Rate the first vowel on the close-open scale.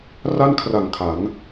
open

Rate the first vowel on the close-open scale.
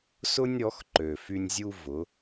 close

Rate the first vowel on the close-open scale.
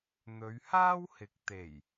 mid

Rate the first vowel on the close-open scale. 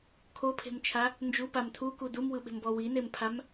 mid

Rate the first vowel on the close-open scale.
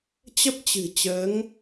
mid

